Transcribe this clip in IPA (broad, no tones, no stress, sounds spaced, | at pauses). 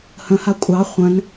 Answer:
h ə̃ h a kʷʼ ɑ χʷ ə̃ n